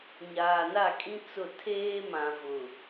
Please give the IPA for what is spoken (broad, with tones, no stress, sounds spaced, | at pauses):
ɲ aː˨ n a˦˨ kʼ ĩ˦ t͡s ʊ˦˨ tʰ eː˦ m ã˨ v ʊ˨